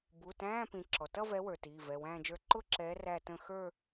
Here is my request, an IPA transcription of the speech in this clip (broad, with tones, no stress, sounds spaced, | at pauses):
b u˩˧˩ t æ̃ː˧˥˧ p ĩ˨˦ ǁ ɔ˩ t ʌ˥˧ v ɛ˨˦ w ə˞˩ t iː˩˧˩ v ɛ˩˧˩ w æ̃ː˥˧ d͡ʒ ə˞˥˧ ǃ ʊ˥˧ ǁ ɛː˨˦ r æ˥˧ t ə̃˥˧ x ə˞˥˧